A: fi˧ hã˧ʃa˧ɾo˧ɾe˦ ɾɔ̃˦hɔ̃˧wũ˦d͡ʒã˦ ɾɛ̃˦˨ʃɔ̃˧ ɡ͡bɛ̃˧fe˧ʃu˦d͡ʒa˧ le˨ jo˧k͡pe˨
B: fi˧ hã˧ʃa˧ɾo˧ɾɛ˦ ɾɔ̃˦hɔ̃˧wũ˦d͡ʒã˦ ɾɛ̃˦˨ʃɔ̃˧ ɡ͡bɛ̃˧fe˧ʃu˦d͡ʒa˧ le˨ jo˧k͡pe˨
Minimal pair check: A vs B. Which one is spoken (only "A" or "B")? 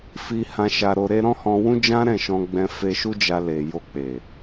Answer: A